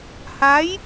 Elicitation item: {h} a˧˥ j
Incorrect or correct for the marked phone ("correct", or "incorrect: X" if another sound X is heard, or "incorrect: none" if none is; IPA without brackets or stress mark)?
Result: correct